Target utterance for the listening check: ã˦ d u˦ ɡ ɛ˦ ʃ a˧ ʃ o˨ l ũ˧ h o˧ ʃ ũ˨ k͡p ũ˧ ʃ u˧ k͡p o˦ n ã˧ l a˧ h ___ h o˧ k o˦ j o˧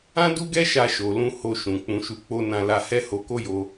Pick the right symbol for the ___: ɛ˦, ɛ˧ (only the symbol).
ɛ˦